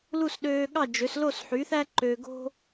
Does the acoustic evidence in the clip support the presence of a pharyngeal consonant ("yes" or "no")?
yes